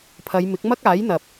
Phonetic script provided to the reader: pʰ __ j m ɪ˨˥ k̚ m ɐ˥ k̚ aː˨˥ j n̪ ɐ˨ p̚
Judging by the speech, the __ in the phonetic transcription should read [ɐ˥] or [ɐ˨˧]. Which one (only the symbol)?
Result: ɐ˨˧